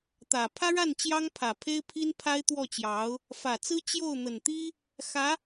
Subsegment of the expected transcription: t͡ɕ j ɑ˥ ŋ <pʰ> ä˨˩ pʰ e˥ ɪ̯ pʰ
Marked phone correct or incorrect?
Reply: correct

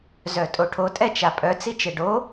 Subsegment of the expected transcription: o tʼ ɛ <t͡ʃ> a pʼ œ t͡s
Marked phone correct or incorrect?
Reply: correct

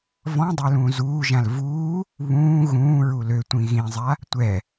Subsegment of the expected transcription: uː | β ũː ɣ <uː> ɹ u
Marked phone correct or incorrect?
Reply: incorrect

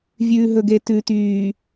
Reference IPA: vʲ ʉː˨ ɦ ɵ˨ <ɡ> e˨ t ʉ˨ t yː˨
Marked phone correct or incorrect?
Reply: correct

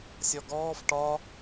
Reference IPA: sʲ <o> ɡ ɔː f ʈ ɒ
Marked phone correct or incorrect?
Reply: incorrect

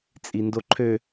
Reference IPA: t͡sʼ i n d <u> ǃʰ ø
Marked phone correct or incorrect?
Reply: incorrect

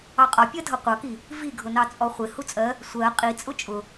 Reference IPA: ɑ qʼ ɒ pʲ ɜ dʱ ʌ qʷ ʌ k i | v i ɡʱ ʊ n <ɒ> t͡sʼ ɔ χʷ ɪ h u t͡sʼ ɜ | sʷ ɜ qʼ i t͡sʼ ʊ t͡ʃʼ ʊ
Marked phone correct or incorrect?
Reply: incorrect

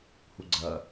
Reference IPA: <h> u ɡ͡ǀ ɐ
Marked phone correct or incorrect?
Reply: correct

